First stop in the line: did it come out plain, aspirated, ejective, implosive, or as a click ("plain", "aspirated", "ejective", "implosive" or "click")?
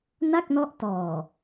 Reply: plain